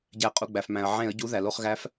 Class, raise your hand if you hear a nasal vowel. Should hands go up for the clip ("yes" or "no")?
yes